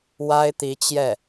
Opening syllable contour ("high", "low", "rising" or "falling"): high